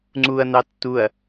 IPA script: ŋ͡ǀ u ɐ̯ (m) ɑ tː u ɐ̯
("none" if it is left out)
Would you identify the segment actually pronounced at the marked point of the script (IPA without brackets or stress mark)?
n̪